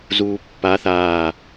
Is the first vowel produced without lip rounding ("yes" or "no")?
no